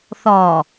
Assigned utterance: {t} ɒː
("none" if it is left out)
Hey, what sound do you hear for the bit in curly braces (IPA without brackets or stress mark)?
θ